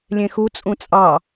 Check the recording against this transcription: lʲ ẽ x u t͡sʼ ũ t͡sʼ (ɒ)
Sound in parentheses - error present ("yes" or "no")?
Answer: yes